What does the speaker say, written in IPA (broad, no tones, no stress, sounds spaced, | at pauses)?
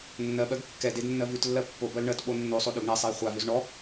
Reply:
nː ɜ ɓ ɜ ɡ kː ɛ d e d nː ɜ v ʉ t lː ɜ pː o b ɜ l ɳ ɜ t ɓ o nː o sˤ o ɗ ø ɡ ɳ ɛ sˤ e j χʷ a v ø z ɳ ɔ